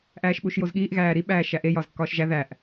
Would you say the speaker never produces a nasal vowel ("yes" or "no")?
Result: yes